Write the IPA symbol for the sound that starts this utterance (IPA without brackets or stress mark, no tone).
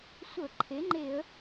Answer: sʷ